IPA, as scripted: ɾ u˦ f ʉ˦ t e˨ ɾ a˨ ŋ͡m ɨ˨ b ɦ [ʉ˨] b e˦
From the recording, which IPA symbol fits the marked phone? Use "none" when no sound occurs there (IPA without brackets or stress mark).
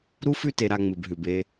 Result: ʉ˨